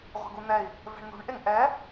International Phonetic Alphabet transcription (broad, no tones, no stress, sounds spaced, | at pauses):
ʁʷ e̤ ɡ u n̪ ɛ i̯ | v ɛ̤ ɳ n̪ ṳ ɳ ʔ e ŋ ʔ ɛ